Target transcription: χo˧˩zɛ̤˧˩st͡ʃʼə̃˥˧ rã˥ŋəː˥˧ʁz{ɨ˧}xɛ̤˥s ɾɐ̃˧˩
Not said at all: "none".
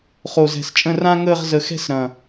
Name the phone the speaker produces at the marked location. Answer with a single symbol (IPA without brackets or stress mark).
ə˧